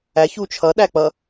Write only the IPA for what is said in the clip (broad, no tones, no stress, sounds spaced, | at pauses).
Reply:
æ ç u t͡ʃʰ ʌ ɗ æ k͡p ʌ